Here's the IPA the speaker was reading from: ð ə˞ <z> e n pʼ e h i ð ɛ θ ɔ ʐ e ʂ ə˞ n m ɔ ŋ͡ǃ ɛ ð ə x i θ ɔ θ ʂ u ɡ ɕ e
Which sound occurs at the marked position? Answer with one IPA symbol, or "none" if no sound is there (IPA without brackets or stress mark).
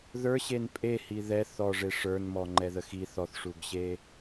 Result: ɕ